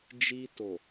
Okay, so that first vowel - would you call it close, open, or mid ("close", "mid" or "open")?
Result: close